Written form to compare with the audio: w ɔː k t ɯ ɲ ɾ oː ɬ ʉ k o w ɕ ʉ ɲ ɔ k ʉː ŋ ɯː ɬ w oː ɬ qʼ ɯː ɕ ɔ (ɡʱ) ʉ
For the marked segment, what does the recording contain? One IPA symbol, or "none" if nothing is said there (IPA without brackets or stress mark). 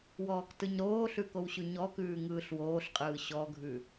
ɡʱ